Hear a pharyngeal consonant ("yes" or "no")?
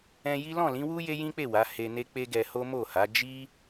no